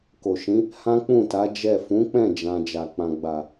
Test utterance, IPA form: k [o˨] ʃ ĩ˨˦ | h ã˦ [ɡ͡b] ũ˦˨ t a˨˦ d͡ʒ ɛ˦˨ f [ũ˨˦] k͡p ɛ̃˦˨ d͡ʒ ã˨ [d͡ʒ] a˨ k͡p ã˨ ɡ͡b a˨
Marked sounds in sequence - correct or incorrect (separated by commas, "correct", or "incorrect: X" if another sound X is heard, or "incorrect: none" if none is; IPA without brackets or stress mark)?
correct, incorrect: k͡p, correct, correct